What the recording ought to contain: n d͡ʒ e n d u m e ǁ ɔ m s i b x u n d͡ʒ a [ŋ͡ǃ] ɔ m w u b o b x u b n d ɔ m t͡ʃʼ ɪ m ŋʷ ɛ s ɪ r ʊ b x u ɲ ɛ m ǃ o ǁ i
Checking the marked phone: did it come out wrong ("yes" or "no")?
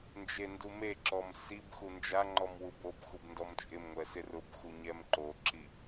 no